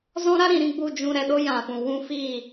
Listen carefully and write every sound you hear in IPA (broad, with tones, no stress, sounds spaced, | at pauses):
z ɔ̃˦ ɾ a˦ ɾ ĩ˨˦ ɾ ĩ˦ ɡ͡b u˦˨ d͡ʒ ũ˧ ɾ ɛ˧ ɗ o˦ j ã˨ f ũ˨ w ũ˦ f iː˦˨